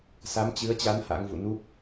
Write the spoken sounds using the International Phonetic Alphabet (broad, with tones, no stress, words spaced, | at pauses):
sa˨˦mt͡ɕɨ˨˦ə̯t͡ɕa˨˦n ha̰˧˥ŋvṵ˧˨ nu˦˥p̚